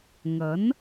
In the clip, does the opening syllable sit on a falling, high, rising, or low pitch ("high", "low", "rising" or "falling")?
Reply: rising